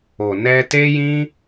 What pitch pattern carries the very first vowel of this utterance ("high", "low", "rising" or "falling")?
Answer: low